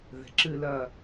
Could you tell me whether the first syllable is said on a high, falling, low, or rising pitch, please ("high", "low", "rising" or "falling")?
low